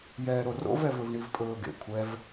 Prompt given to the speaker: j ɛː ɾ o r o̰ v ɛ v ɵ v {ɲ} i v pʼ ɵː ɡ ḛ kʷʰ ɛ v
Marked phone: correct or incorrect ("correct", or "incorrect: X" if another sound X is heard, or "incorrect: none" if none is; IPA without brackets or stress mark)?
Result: incorrect: ɳ